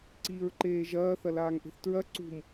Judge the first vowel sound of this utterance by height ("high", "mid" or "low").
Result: high